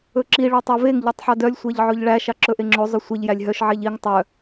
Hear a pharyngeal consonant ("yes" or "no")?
yes